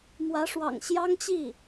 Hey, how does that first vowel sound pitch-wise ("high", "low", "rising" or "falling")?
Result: rising